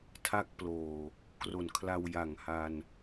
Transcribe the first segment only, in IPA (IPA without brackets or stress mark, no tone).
tʰ